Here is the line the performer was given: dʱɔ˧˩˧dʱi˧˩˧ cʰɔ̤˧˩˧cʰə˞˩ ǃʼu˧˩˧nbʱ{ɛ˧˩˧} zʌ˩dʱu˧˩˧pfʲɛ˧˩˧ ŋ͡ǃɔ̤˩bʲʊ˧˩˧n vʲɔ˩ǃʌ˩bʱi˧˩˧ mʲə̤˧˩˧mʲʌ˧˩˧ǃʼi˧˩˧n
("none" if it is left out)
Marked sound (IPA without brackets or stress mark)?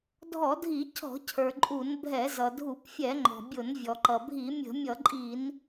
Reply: ɛ˧˩˧